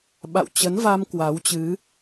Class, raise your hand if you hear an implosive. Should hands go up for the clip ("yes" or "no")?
yes